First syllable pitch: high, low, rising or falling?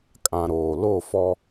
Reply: low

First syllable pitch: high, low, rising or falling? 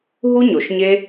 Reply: high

